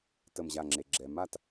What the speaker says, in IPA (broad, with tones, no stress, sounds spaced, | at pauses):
t ə˧˩ m ʑ a˧˩ ŋ͡ǁ e˩ ɡ͡ǁ ɛ˩ m a˥˨ t